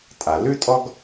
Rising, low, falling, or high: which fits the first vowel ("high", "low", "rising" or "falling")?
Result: low